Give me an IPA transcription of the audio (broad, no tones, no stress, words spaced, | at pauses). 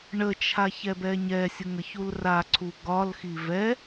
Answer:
ɳət͡ʃʰa çɛbɛɲɛsʲəŋ əçulraǀʰu ɡɒlxi vɛ